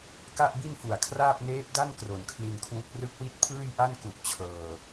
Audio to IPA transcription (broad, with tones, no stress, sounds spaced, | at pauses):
k a˥˩ ʔ b i˥˩ n f u˨˩ a̯ kʰ r aː˥˩ p̚ n eː˦˥ p̚ d a˥˩ n k r o˨˩ n kʰ l i˧ n kʰ w u˦˥ k̚ r ɯ˦˥ k̚ w i˦˥ t̚ pʰ ɯː˥˩ j ʔ a˥˩ n k u˨˩ ʔ t͡ɕʰ ɤː˨˩